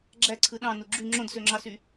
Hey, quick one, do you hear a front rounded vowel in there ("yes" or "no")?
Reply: yes